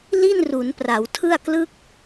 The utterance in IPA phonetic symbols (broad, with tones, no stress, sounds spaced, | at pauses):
l i˥˩ n r u˩˦ n p r a˩˦ w tʰ ɯ˥˩ a̯ k l ɯ˦˥ k̚